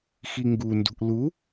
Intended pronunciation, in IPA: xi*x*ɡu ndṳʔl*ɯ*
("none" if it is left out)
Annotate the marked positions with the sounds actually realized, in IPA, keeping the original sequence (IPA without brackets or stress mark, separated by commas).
ŋ, u